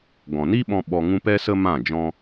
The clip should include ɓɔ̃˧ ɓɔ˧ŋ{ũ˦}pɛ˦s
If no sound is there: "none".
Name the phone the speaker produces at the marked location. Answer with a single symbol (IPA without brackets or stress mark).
ũ˦